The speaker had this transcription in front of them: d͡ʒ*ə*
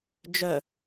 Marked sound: incorrect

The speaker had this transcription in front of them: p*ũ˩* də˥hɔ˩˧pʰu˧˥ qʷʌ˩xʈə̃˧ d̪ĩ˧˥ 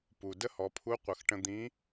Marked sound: incorrect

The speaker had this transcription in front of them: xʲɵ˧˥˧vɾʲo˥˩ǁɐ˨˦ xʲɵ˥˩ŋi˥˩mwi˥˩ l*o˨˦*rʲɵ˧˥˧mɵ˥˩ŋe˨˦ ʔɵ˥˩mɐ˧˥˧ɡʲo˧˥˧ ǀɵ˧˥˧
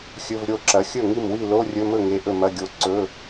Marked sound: incorrect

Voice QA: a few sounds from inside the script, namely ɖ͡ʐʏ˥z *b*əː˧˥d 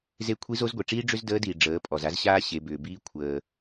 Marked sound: incorrect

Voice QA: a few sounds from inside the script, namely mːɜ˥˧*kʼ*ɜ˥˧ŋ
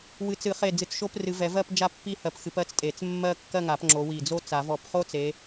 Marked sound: incorrect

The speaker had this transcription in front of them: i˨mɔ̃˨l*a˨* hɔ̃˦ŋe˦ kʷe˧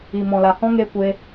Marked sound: correct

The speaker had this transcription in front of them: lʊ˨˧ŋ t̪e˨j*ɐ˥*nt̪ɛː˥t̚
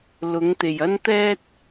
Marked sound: correct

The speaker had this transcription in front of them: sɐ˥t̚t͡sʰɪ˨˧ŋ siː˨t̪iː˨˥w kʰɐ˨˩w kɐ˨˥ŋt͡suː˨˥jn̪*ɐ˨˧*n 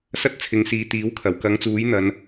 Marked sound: correct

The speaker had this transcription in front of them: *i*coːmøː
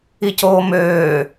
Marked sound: correct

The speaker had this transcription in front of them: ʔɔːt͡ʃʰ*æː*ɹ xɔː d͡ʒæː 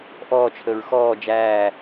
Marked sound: incorrect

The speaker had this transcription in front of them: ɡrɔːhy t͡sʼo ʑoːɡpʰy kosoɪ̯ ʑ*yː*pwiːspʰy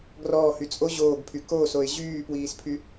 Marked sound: correct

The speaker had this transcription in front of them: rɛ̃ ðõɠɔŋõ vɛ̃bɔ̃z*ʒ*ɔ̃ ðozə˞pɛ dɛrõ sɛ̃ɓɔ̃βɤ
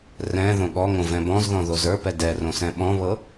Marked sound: incorrect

